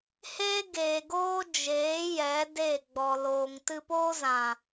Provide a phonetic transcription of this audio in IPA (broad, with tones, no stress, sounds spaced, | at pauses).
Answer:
h eː˦ ɡ eː˨ ɡ oː˦ d͡ʒ eː˨˦ j ɛ˨˦ d e˦˨ ɡ͡b ɔ˨ l oː˨ ŋ t ɨ˧ p oː˦ z ã˨